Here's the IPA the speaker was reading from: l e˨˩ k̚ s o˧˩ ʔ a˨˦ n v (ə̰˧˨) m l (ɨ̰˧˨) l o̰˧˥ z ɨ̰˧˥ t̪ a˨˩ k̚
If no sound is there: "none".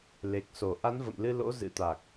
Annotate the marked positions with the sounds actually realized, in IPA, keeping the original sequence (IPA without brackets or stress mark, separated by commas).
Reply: ə̰˧˨, ɨ˧